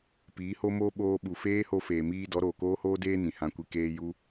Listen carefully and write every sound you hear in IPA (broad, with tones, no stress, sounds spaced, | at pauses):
p iː˨˦ h o˦ m oː˦ ɓ oː˧ ɓ u˨ f eː˦ h o˧ f eː˨ m iː˧ d ɔ˨˦ ɾ oː˨ k oː˦ h oː˦ d eː˦ n ĩ˨ h ã˧ kʷ i˧ k eː˧ j u˧